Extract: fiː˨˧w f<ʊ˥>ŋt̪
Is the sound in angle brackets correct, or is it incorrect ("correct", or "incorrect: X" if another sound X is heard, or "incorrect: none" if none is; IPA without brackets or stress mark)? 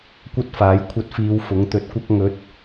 incorrect: ʊ˨˥